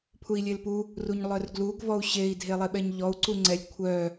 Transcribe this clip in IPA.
pʰ u i̯ lʲ e l p u | r u ɲ lˠ œ r ɡ l u ɡ v ɔ u̯ ɕ e i̯ dʱ e lˠ e ɓ ɛ ɲ ʎ ɔ u̯ ǀ u ŋ͡ǀ ɛ lʲ kʷʰ œ

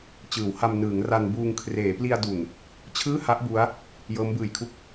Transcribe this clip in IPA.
t͡ɕ ɯː˩˦ w h a˧ m n ɯː˩˦ ŋ r a˧ n b uː˧ ŋ kʰ r eː˩˦ p l i˧ a̯ d u˨˩ n | t͡ɕʰ ɯː˥˩ h a˦˥ ʔ b u˦˥ a̯ | j ɤː˦˥ m b ɯː˨˩ j kʰ u˥˩ k̚

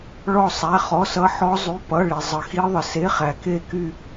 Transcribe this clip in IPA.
ɭ ɔ˥˧ sˤ æ˧˥˧ χ ɔ˧˥˧ s ʌ˦˥ ħ ɔ˦˥ zˤ y˧˥˧ p ʌ˧˥˧ ɭ i˨ zˤ ə˨ x i˦˥ ðˤ ə˨ s e˧˥˧ χ æ˨ k e˥˧ k y˥˧

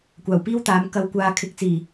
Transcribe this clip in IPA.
kʷ aː˨˩ w p iː˥ w t̪ aː˨˥ m k ɐ˧ w kʷ aː˧ kʰ ɪ˨˥ k̚ t͡s iː˨˩

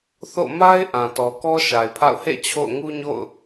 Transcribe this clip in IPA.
θ o̰˦˨ m a˦ ɪ̯ ʔ ã˨ t ɔ˨ k ɔ˦ ʃ a˨ ɪ̯ pʰ a̰˦˨ ʊ̯ h ḛ˦˨ t͡ɕʰ o̰˦˨ ʊ̯ ŋ u˦ ɲ o̰˦˨ ʊ̯

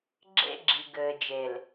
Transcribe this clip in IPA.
ɡ͡ǁ ḛ˦ ɡ͡ǁ i˨ ɡ ɘː˨ d͡ʒ e˨ l

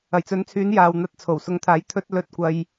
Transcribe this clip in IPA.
ɐ˨˩ j t͡s ɵ˨˥ n t͡sʰ yː˨˥ n j aː˨ w n̪ ɐ˧ t̚ t͡sʰ o˨˩ w s ʊ˨˥ ŋ t̪ʰ aː˨˥ j t̪ʰ ɵ˧ t̚ l ɵ˧ t̚ kʷ ɐ˧ j

